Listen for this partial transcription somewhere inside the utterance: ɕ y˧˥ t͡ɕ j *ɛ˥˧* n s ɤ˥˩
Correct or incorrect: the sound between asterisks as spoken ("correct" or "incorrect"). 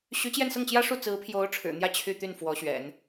correct